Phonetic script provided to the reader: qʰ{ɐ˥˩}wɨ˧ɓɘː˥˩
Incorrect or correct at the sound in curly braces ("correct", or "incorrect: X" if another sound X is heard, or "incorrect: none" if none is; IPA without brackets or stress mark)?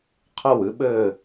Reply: correct